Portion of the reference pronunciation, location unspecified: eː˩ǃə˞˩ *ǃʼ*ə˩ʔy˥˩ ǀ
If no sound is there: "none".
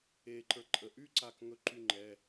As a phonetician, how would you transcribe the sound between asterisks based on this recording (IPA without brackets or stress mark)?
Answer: ǃʼ